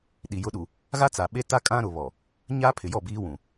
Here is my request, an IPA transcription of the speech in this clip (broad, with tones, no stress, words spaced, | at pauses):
ɗi˨ jʊ˨˦ɗu˨ | ɣa˦t͡sa˨ɓe˦ta˦ kʼã˦ɾʊ˨βɔ˨ | ɲaː˦pʰɪ˨jɔ˦˨ biː˦wũ˨